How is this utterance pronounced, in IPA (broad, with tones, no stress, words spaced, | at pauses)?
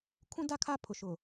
kʰũ˦da˦ kʰa˦pʰʊ˨ʃʊ˨